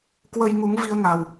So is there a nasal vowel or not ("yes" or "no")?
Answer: no